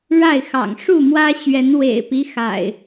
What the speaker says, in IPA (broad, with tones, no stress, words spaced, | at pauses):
ɻa˥˨ɪ̯xɑ̰˨˩ŋ ʂu˥˨mwä˦ ɕɥɛ˨˦nwḛ˨˩ɪ̯pi˦ xa̰˨˩ɪ̯